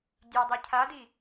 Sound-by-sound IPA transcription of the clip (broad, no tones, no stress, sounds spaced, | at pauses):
dʲ ø dˤ i cʰ a d i